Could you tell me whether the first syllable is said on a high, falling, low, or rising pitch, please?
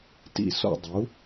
falling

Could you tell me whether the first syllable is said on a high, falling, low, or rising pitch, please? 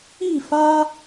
falling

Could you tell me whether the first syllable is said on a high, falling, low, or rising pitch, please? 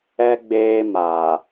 low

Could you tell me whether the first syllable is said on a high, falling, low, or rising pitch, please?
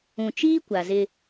low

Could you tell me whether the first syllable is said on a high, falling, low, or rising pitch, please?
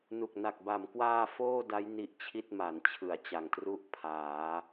low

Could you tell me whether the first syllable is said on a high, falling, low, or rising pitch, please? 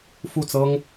falling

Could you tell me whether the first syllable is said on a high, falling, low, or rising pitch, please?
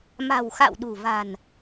low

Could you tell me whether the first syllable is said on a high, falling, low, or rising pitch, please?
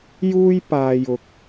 high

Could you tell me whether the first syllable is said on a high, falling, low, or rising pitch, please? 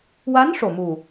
rising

